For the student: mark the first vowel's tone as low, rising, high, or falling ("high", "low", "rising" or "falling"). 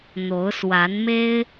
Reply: rising